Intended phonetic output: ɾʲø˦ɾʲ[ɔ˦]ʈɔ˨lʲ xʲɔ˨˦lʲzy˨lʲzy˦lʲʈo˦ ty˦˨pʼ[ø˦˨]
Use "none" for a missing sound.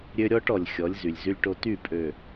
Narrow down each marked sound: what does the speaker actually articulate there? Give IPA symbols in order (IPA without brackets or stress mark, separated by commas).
ɔ˦, ø˨